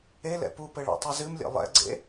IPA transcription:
e l ɛ̰ p u p ɘ ɭ a̰ tˤ ɐ z ɨ m lʲ ḛ lˠ ɛ̰ ɡ͡ǀ ḛ

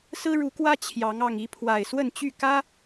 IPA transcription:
s ɹ̩˦ ɻ u˨˦ k w ä˦ t͡ɕʰ j ɑ˨˦ ŋ ɑ˨˩ ŋ i˨˦ pʰ w a˨˩ ɪ̯ s w ə˥˨ n t͡ɕ y˥˨ k ä˦

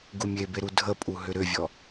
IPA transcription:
ɡ u mʲ e b e ɾ u dʱ ə pʼ u ɦ ʏ ɾ ʏ vʲ ɔ

